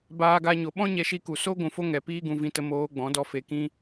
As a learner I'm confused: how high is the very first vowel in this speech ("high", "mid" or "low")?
low